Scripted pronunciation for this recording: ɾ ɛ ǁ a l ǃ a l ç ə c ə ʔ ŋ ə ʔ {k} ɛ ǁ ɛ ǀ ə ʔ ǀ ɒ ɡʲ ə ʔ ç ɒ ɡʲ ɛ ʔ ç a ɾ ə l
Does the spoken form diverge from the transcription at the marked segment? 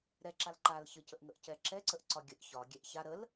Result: yes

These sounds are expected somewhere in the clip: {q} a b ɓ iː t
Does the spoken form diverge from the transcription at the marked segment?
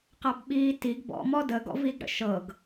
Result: no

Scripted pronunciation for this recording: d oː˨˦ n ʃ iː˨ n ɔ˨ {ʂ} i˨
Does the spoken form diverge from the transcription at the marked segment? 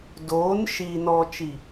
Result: yes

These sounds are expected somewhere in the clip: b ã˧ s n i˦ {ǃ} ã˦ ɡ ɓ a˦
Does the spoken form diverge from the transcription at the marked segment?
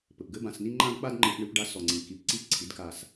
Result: yes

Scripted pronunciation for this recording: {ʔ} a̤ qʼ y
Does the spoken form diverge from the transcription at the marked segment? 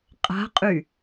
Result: yes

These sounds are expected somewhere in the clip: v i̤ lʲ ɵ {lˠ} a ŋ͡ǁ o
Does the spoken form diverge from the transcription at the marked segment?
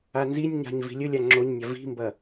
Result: yes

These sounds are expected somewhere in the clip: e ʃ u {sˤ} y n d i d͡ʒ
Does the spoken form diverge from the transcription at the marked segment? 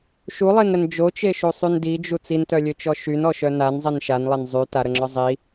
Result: no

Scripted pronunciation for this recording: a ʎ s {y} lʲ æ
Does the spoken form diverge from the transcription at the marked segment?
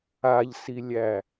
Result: yes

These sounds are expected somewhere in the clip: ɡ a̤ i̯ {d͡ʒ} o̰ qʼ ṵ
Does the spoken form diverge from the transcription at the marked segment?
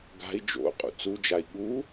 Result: no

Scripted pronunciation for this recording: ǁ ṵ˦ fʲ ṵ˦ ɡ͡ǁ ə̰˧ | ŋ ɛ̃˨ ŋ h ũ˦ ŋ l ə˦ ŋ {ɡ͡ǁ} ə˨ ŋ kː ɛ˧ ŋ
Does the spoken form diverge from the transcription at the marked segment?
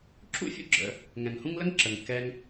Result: yes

